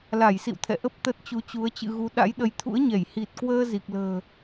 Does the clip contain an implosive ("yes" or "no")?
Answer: yes